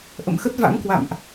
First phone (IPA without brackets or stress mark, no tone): ʔ